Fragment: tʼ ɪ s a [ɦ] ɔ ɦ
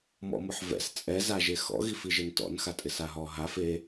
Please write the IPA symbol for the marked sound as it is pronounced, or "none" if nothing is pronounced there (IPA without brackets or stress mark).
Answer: ɦ